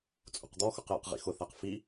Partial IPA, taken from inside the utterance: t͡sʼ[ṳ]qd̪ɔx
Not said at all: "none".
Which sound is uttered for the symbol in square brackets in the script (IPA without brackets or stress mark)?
ṳ